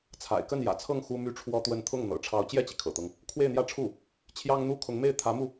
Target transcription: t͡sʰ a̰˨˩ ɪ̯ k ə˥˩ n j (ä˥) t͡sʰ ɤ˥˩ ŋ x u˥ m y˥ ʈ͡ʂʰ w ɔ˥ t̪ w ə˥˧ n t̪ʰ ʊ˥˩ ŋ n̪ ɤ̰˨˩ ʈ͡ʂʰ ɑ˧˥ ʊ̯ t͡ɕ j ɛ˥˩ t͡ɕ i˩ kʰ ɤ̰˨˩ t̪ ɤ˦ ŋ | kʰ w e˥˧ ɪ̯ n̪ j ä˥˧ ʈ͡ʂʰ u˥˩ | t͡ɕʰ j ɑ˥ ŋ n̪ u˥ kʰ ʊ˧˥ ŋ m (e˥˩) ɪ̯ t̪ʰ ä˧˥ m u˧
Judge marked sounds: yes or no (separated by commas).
no, yes